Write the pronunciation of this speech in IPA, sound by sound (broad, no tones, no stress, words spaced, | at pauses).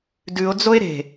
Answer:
dʉo̯d͡zoe̯ ɾe̤